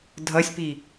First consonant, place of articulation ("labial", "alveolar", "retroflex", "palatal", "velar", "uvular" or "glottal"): alveolar